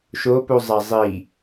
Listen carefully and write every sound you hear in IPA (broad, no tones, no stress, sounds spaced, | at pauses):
ʃ o p u zˤ æ zˤ i